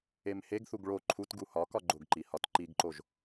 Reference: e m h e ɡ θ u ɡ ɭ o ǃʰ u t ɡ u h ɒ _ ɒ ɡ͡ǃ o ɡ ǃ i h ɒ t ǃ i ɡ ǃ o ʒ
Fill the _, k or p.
k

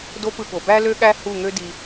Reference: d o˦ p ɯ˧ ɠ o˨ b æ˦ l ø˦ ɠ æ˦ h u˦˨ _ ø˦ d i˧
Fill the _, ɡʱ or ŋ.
ŋ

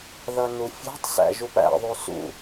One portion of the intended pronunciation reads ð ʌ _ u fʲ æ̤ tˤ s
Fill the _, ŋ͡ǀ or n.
n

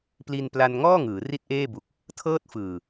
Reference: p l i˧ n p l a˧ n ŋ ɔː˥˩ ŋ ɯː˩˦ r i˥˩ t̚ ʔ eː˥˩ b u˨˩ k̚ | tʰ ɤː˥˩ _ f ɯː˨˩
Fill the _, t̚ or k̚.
t̚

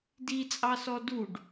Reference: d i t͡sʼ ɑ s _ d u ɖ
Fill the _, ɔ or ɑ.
ɔ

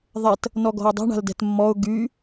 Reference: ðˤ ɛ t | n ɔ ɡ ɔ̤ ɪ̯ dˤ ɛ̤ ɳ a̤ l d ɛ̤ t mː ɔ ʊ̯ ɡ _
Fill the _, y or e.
y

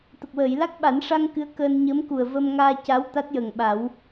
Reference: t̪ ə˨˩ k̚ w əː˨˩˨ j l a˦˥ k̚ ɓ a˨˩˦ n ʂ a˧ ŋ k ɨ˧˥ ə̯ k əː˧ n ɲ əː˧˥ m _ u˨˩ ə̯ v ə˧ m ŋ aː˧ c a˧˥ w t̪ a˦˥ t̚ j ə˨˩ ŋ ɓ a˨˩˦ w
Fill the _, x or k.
k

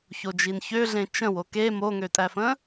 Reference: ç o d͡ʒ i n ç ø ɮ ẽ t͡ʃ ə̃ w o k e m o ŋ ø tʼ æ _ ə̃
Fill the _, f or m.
f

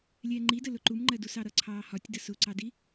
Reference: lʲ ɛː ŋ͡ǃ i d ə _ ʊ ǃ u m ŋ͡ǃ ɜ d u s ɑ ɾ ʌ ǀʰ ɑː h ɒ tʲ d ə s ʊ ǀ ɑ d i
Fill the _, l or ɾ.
l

